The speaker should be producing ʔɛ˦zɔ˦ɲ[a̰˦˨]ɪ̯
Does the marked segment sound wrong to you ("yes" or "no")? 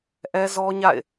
no